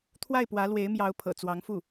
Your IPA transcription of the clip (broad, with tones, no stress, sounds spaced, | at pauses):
t̪ʰ w a˥˩ ɪ̯ p w ä˧˥ l w e˧˥ ɪ̯ m j ɑ˧˥ ʊ̯ pʰ ɤ̰˨˩ t͡s w ɑ˧˥ ŋ f u˥˩